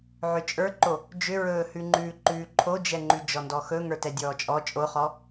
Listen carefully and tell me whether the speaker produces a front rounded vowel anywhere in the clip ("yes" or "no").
yes